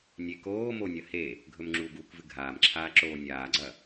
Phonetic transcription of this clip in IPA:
nʲ e k oː m o nʲ ɐ h e | ɡʱ ɵ m ŋ͡ǁ u ɡ uː k v ɨ ɡʱ aː m ǁʰ aː ǁ oː nʲ aː ɡ͡ǀ ɐ

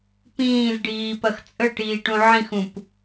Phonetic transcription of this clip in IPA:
p ĩː z ɖ iː p ɐ x t͡sʼ ə ʈ iː ʈ ũ ʕ ĩ x ũ p

